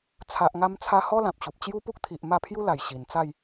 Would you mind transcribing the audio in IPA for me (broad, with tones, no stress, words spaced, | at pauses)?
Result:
t͡sʰa˨ʔŋa˧mt͡sʰa˧hɔ˦ lã˨p̚ɕu˨p̚ t͡ɕju˦pu˦k̚t̪ʰi˨ʔ ma˥˧pʰju˦la˨˩j ɕi˨˩nt͡sa˥˧j